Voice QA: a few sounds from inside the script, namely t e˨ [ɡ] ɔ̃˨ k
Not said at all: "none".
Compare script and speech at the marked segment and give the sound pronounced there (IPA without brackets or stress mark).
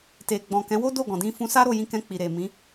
ɡ͡b